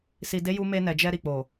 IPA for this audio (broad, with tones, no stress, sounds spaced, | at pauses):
s i˨ d e˨˦ j u˧ m e˧ n ɛ˨ d͡ʒ ɛ˧ ɾ i˨ k͡p o˨